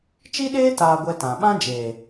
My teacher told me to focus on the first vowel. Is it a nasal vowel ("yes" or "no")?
no